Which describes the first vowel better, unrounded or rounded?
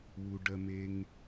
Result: rounded